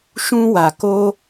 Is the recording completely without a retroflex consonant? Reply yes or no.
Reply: yes